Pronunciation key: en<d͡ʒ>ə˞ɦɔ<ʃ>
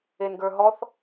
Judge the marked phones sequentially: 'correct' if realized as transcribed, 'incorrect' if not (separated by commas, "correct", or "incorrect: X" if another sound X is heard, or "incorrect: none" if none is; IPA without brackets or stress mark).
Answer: incorrect: ɡ, incorrect: θ